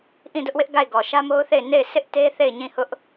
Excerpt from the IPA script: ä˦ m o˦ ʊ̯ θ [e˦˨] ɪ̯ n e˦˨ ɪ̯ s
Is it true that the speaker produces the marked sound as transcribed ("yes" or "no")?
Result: yes